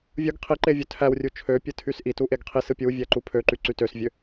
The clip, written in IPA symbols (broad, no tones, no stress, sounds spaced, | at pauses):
vʲ ɯ ɡ qʰ i ǃ e vʲ ø tʰ æ w rʲ u t͡ʃʰ ø pʲ ɯ tʰ y s ʔ i t u ʔ e ɡ qʰ i s ɯ pʲ u vʲ æ ǃ u pʰ ø ǃ y ǀ y t ø s vʲ ø